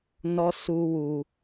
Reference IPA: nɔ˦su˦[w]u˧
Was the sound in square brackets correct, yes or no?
yes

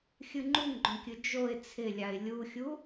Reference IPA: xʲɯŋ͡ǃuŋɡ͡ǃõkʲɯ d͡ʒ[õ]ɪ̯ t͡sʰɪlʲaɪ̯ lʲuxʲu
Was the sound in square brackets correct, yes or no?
no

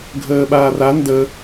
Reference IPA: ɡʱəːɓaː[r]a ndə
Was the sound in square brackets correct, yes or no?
yes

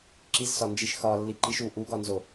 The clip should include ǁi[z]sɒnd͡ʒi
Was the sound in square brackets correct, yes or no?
yes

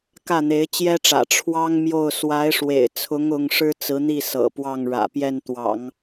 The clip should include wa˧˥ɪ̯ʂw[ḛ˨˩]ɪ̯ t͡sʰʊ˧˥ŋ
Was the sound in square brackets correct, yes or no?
yes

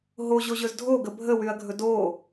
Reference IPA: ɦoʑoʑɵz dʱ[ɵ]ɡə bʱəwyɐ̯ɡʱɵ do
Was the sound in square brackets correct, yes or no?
no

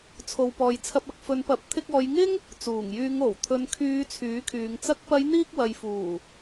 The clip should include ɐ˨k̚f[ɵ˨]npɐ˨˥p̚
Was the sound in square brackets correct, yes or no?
no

